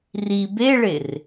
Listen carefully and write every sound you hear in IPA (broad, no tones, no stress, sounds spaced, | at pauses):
r i b e ɭ e r